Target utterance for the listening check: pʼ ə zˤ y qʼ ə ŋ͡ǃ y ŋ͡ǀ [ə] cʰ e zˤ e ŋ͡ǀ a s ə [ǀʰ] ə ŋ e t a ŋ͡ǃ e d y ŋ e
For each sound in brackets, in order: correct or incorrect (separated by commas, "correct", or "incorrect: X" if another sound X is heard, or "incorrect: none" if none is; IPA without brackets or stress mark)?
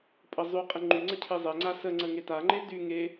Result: correct, incorrect: ŋ͡ǀ